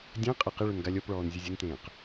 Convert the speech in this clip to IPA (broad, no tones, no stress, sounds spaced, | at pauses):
dʲ ã qʼ ɪ q ɪ ɭ ʊ n ɡ a lʲ ɔ p ɭ ɔː n zʲ ʊ zʲ ʊ n t ẽː q